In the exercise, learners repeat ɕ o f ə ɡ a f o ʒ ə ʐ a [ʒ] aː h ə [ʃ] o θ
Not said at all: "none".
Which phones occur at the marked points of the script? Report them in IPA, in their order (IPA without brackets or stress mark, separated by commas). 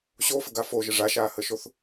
ʃ, ʃ